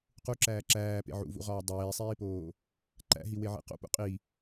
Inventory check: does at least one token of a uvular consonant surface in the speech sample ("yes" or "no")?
yes